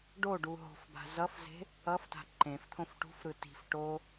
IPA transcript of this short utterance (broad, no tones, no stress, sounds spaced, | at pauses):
ɖ o ɖ u ɦ o̤ f b a̤ z ʌ f z e̤ | ʌ f t a̤ ǃ ẽ f t̪ʰ õ f ʈ ṳ f ɾ ɯ t i̤ f ʈ o